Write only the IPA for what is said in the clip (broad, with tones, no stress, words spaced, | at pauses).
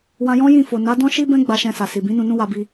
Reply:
wã˧jɔ̃˦jĩ˦˨fo˨ na˨˦ dɔ̃˦ʃi˦bɛ̃˦ ɡ͡ba˧ʃɛ̃˧sa˨ si˨bĩ˨˦ nũ˧nũ˦wa˧bi˧